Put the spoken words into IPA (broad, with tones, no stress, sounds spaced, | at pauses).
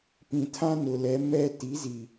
p ĩ˨ tʰ ã˦ n ʊ˨ l ɛ˨˦ m ɛ˦ t i˨˦ z i˨